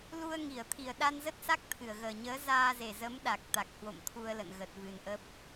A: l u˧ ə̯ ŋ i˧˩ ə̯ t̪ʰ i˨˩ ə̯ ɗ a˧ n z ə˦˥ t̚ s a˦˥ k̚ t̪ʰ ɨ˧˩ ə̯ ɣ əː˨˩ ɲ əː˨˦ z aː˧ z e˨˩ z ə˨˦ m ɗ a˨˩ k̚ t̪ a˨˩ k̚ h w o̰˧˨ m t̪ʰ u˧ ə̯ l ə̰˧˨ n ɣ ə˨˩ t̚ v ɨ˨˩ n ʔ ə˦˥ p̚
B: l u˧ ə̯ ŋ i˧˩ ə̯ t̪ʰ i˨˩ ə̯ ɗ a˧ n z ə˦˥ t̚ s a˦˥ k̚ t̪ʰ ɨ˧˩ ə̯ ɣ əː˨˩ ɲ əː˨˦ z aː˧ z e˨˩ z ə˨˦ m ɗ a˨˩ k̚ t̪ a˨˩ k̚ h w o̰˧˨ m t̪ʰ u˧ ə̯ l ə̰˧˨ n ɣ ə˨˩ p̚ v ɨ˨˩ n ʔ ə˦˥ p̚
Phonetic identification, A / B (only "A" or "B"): A